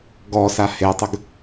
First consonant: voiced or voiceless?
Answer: voiced